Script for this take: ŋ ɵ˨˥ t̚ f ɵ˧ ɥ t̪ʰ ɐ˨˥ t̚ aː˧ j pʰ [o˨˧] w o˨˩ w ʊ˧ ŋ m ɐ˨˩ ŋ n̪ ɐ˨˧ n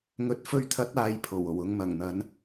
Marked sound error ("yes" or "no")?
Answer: yes